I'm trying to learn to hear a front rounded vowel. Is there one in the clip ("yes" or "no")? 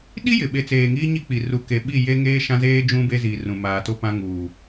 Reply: no